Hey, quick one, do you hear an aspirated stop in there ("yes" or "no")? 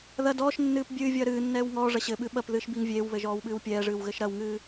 no